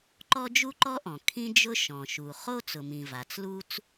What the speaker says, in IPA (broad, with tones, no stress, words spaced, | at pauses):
ǃɔ˥d͡ʒu˥ǃɔ˥ʔɔ̃˩ kʰĩ˥d͡ʒʊ˥ ʃɔ̃˩ʃu˩ χo˥ t͡sʊ˩mĩ˩ va˩t͡slu˥t͡s